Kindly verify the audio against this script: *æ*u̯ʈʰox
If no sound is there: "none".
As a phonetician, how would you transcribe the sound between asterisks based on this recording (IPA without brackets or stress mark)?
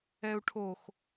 ɛ